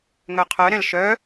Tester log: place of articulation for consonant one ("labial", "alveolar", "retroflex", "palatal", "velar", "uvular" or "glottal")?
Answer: velar